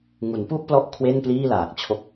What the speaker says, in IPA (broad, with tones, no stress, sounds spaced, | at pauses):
ŋ u˩˦ n p u˥˩ ʔ p l ɔ˦˥ ʔ kʰ w e˥˩ n p l iː˥˩ l aː˨˩ k̚ t͡ɕʰ o˦˥ k̚